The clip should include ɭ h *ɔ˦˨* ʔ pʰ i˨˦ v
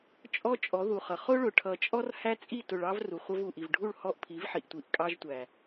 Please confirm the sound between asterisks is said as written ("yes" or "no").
yes